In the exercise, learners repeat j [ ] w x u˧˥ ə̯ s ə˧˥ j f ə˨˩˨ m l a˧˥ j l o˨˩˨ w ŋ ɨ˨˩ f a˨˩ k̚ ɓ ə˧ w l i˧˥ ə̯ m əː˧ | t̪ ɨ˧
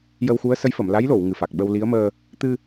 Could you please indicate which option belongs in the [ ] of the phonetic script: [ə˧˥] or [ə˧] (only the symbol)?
ə˧